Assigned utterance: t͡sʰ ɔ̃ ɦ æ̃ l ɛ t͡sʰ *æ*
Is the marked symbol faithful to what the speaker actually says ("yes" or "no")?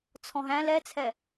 no